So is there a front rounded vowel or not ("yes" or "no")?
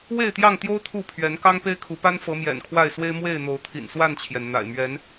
no